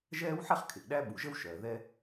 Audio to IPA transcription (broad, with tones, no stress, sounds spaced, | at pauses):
ʒ ɛː˥ w ħ ɛ˥ χ kʰ ɪ˩ ʔ ɗ æ˥ ɓ u˩ ʒ ə˥ w ʃ ɜ˩ ð ɛ˥